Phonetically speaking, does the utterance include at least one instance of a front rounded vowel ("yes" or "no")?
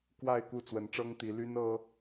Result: yes